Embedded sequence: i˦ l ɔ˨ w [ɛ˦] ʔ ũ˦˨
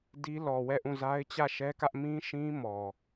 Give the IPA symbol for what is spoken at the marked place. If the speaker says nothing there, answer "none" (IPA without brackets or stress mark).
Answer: ɛ˦˨